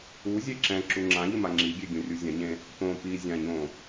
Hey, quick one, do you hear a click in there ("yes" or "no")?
yes